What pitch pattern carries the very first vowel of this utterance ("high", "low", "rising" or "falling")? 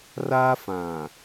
high